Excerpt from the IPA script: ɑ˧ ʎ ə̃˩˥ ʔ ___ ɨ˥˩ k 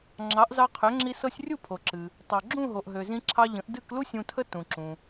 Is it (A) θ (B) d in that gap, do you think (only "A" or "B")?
B